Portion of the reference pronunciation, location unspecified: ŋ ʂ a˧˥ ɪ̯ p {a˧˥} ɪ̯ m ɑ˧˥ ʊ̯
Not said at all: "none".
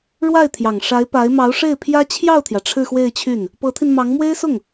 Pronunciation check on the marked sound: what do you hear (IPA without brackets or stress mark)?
a˧˥